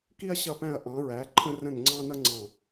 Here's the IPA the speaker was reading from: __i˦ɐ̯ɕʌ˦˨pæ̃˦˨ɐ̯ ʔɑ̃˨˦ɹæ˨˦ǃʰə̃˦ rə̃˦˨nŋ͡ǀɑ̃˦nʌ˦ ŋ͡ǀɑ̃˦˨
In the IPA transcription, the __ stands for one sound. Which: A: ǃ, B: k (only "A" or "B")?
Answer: B